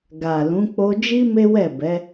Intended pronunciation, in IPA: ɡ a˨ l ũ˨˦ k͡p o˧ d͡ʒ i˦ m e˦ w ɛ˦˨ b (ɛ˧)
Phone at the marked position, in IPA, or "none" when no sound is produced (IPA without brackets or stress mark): ɛ˨˦